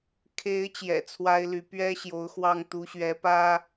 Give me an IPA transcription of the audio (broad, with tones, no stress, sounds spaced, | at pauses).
kʰ e˨˦ ɪ̯ t͡ɕ j ɛ̰˨˩ t͡sʰ w a˦ ɪ̯ l y˨˦ p ɥ ɛ˦ ɕ j o˨˦ ʊ̯ x w ɑ˥˨ ŋ t̪ u˨˦ ɕ ɥ ɛ˨˦ p ä˦